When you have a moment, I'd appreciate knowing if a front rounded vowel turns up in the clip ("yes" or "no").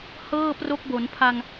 no